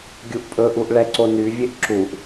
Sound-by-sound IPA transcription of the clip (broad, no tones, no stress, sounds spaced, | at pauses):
ɡʲ u ʔ pʼ ɵ ʔ u ʔ ɭ ɛ ǀ o n y vʲ e ʔ ǁ u ʔ